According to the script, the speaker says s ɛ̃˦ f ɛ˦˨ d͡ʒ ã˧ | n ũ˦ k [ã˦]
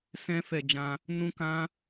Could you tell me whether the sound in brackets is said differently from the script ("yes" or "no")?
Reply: no